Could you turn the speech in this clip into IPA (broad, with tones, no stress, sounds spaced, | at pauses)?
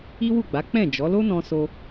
i˦ w u˦˨ ɡ͡b a˨˦ k͡p ɛ̃˦˨ d͡ʒ ɔ˨˦ l o˦ n ɔ̃˧ s o˧